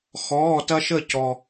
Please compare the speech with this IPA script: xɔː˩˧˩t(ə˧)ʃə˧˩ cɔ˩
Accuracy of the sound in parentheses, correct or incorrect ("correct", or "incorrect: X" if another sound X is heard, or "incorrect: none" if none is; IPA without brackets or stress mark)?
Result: incorrect: ɐ˧